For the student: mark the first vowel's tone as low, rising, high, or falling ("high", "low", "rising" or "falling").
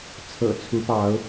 low